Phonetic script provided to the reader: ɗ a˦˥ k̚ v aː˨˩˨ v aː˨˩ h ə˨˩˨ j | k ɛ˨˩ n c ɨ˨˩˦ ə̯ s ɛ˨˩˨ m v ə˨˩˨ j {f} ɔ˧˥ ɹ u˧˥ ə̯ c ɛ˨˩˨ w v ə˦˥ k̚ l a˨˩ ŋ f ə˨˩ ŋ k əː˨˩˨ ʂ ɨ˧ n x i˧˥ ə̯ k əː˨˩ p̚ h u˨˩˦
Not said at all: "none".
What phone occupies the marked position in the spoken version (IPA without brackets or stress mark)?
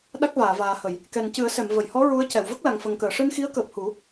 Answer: h